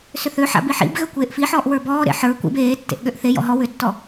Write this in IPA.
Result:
sʏθøħa̰b iħḭbɣø kʷeːʔfiħɔːʔ wə˞bɔːɾḛ ħə˞ kʷḭb eːtːḛʔ ɠøʔθejɔ̰ ɦɔ wʏtːɔ

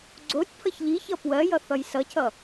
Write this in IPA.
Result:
ɡ͡ǀotʲ pʰʌçʎiçʌ pwɜjʌ θʌjsʌcʰʌ

